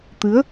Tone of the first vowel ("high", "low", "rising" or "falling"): rising